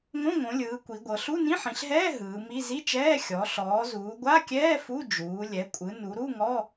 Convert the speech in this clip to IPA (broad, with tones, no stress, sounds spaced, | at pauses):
ŋ õ˧˥˧ ŋ õ˩˧ lʲ ɯː˩˧ kʷ i˩˧ ɡʷ ɤ˩˧ ɬ u˧˥˧ n ĩ˧˥˧ ħ ĩ˩˧ ɬ ɦ ɛː˧˥˧ ɦ ɯː˩˧ m i˧˥˧ z i˧˥˧ t͡ʃ ɛː˧˥˧ xʲ ɔ˩˧ ɬ ɔː˩˧ z uː˩˧ ɡʷ a˧˥˧ kʲ ɛː˧˥˧ f u˧˥˧ d͡ʒ uː˩˧ lʲ ɛ˩˧ kʷʼ ɯ˩˧ n u˩˧ ɾ u˧˥˧ ŋ ɔ˧˥˧